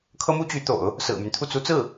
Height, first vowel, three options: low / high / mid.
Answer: mid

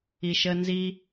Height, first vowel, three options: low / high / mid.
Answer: high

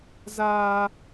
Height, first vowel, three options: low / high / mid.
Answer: low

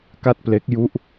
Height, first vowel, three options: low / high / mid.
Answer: low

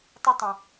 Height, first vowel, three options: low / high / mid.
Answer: high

